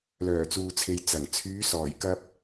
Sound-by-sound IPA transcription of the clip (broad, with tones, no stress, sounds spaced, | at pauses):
l œː˨˩ t͡s uː˨ t͡sʰ e˨ j t͡s ɐ˨˩ ŋ t͡sʰ yː˨˧ s ɔː˨˩ j k ɐ˧ p̚